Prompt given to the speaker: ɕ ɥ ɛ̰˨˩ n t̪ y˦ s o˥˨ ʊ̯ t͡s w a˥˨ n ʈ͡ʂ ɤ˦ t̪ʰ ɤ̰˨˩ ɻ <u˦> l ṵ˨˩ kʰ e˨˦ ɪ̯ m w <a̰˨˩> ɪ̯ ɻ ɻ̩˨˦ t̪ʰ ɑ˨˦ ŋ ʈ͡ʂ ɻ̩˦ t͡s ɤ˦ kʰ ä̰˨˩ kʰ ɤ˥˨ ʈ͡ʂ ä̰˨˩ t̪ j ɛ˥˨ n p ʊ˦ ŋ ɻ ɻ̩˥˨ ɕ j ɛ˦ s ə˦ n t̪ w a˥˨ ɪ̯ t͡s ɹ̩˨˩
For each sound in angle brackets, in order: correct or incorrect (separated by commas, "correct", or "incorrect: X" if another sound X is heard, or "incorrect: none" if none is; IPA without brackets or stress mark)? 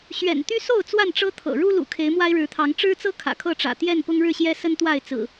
correct, incorrect: a˦